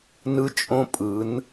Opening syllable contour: high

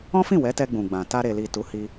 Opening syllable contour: high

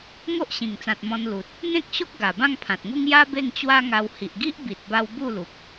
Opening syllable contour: high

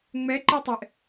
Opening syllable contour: rising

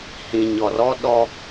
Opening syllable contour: low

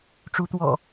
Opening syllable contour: rising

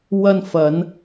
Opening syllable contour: low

